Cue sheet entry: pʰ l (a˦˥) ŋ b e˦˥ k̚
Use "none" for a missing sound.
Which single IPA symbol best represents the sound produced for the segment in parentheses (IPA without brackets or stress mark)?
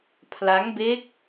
a˦˥